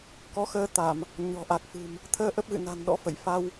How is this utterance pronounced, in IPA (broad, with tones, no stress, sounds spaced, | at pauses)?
k ɔ˨˦ x əː˧ t̪ a˧˩˨ m | ɲ ɔ̤˨˩ ʔ a˨˩ k̚ f ɨ̤˨˩ m | t̪ʰ əː˧ ʔ ə˦˥ p̚ ɣ ɨ̰˧˨ n a̤˨˩ n ɗ ɔ̰˧˥ f ə̰˧˨ j f a˧ w